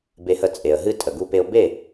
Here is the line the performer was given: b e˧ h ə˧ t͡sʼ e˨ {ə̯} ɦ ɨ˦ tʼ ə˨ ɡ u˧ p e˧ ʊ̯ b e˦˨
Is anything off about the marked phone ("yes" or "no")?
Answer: no